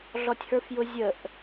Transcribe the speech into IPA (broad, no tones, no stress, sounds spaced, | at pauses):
ɮ ɔ tʲ h ə˞ f j ʊ zʲ ə ʔ